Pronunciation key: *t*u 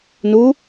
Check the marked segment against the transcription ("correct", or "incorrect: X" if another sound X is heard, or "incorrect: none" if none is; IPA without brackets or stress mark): incorrect: n